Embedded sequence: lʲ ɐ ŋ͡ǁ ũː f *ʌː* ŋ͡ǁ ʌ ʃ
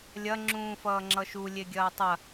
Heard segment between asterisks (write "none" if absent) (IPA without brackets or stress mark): ʌː